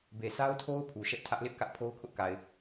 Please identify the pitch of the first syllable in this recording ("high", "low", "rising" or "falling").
low